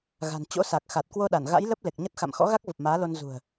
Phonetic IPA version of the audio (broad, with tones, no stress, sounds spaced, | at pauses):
ɣ a̤˨˩ n t͡ɕ o̰˧˥ s a˨˩ k̚ x a˨˩ t̚ k w o˧ ɗ a˧˩ n ɣ a̰˧˥ j l ə˦˥ p̚ l e˨˩ k̚ ɲ ə˦˥ t̚ x a̰˧˨ m x ɔ̰˧˥ ɣ a˦˥ k̚ v ə˨˩ p̚ m aː˨˦ l o˧ n z ṳ˨˩ ə̯